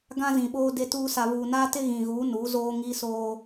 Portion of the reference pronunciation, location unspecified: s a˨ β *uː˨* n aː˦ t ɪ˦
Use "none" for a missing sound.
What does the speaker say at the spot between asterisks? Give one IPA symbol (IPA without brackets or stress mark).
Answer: uː˨